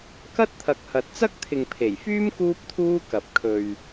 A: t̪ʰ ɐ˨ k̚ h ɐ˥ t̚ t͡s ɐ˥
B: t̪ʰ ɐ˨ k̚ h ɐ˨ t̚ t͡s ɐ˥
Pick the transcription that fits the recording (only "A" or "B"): B